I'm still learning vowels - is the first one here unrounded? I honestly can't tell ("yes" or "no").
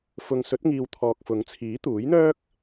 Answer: no